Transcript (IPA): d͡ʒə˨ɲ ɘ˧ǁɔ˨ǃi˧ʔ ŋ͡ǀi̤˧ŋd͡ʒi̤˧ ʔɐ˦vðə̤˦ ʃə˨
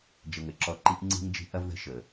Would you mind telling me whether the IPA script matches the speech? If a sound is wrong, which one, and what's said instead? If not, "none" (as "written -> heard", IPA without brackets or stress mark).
ɲ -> ŋ